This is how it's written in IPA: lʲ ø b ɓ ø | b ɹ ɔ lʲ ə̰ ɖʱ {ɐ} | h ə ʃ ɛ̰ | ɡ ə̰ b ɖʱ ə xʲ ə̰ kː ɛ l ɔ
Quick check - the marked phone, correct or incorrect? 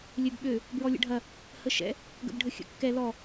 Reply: correct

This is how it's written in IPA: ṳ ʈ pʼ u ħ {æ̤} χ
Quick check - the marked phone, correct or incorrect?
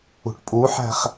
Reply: correct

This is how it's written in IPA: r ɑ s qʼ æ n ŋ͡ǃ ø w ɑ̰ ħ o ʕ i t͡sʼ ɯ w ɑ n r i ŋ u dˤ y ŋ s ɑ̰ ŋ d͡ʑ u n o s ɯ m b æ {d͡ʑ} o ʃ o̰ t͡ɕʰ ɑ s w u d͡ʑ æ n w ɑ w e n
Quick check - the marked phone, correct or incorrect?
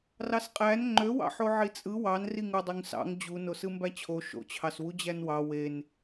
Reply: incorrect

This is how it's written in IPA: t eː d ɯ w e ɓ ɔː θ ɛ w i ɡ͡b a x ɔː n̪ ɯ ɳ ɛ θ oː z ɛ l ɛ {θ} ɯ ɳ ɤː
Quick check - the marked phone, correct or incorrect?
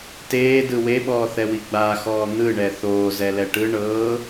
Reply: incorrect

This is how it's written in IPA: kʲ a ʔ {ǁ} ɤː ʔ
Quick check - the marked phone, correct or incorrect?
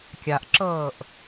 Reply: correct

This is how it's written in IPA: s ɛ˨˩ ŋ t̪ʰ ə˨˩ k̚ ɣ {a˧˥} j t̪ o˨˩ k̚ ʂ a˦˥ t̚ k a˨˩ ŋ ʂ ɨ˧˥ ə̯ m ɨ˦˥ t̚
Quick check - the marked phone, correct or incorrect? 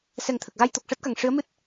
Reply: incorrect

